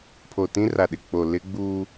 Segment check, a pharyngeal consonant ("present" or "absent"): absent